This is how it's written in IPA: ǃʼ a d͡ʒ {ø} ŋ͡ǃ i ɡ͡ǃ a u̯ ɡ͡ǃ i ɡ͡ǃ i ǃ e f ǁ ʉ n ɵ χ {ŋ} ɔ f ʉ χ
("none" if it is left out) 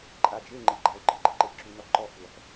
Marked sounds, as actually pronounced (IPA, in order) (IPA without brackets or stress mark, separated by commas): e, ǃ